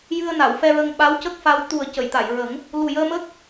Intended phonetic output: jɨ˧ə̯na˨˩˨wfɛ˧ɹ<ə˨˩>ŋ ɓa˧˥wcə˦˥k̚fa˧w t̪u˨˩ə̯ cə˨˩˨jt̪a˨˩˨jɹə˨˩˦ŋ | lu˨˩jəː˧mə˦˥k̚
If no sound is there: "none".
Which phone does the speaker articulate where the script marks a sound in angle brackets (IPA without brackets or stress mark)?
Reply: ə˧